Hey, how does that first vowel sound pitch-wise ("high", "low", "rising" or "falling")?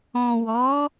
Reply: low